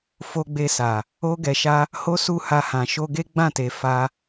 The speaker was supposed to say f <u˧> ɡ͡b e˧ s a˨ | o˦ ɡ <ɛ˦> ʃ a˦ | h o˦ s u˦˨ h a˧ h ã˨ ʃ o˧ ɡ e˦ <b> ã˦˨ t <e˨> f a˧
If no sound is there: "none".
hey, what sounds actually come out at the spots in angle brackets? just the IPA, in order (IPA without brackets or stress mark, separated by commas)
o˧, ɛ˧, ɡ͡b, e˨